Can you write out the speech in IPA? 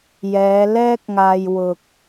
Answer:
jɛː˨˧lɛː˥k̚ŋaː˧j wʊ˧k̚

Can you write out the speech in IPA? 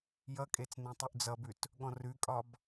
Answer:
jʌkʼet͡snẽtˤʉʔ d͡zʌbʉt | ɠɔ̃rʉkʼɒb

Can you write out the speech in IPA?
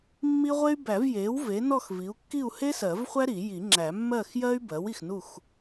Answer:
mːi˥ʁʷe˥y̯ bæ˨˩˦vje˩˥w ve˩˥nɔ˥˨xvi˩˥u̯ kːi˥˨u̯he˥sɜ˨˩˦v χʷæ˥ɾi˨˩˦ji˨˩˦ ŋ͡ǁæ˨˩˦mːɜ˥˨xjɜ˥y̯ bɜ˩˥w i˨xnu˥˨x

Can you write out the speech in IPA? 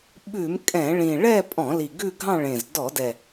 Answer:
ɓʉ˧˩˧m kʼɛ̃˧˩˧ɭĩ˨˩ ɭɛ˥˧pʼɔ̃˧˩˧li˨˩ ɡʉ˥˧ɡʱɑ̃˥˧ɭẽ˨˩z dɔ˧˩˧dɛ˨˩

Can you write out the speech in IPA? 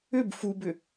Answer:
ʏb fubʏ

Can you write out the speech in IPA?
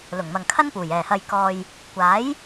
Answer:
lʊ˨˩ŋmɐ˨ŋkʰɐ˥npuː˨˩j ɛː˨˩hɐ˨jkɔː˨j | kʷaː˨˥j

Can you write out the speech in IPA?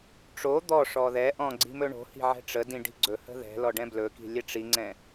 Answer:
ʈ͡ʂo d̪ɔ ʂɔðɛʔɔ̃ ɡ͡ǀi̤mɵɳo̤hi̤ ʕɛ̤ʈ͡ʂədĩ ɖi̤ɡ͡ǀɵhə̤ ðɛ̤lɔ ɖɛ̃blɵki̤ lʲɛʈ͡ʂiŋ͡ǀɛ̃

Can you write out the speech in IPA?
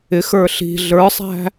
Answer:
ɪxə˞ ɬi̤ ɮə˞sˤæ̤

